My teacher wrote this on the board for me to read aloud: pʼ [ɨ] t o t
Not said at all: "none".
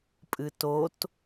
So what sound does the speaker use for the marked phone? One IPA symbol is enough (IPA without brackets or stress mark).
ɨ